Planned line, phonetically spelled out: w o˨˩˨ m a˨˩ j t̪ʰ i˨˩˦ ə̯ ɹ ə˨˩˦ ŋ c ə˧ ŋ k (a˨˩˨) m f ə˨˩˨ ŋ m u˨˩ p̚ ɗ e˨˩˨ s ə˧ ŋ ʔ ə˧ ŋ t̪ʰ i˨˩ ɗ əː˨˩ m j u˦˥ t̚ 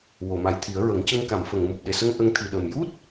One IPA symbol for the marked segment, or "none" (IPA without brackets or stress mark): a˨˩˨